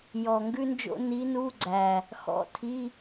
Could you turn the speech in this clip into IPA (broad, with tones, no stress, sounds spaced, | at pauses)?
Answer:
j ɔ˨˩ ŋ ɡ ʉ˥ n d͡ʒ o̰˥ n i˧˥ n u˧˥˧ ɡ͡ǀ æ˨˩ | x ɔ̰˧˥˧ tʰ i˧˥˧